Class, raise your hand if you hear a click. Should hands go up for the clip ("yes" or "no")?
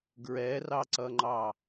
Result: yes